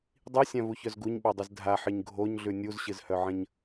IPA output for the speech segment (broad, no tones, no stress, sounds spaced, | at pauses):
dˤ i sʲ ã v u ç œ z ɡ u ɲ ɓ œ dˤ ɨ z dʱ a ħ ɨ ɲ ɡʱ o ɲ ɮ ʉ nʲ u z ɕ ɨ z h œ ʕ ə̃ ɲ